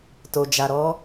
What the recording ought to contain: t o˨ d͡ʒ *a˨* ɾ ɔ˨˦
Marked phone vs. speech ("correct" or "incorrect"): correct